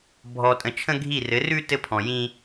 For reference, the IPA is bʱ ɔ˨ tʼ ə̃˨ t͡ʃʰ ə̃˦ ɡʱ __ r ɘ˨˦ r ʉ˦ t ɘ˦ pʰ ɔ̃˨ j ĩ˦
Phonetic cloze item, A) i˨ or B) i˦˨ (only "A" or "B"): B